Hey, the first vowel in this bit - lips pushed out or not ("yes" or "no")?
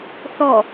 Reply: yes